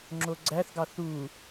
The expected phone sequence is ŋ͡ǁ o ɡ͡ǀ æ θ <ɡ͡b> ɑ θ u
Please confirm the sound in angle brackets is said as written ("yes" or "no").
no